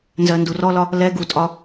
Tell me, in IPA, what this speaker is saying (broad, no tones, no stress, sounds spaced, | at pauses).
n z ɜ n d u r ɔ l ɒ | l ɛ ɡ u tʼ ɒ